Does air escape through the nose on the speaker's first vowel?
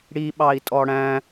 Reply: no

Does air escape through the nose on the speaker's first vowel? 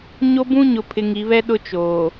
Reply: no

